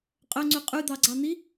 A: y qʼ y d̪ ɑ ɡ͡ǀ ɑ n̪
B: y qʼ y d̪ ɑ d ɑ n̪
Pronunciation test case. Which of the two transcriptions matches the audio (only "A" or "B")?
A